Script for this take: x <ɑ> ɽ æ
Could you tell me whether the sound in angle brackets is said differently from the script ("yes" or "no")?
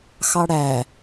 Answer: no